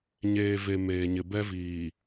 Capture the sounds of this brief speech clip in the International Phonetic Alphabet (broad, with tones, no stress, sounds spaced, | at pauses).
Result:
ɲ eː˨ v e˨ m eː˨ ɲ ɪ˨ b ɛ˦ v iː˨